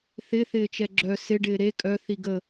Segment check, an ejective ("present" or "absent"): present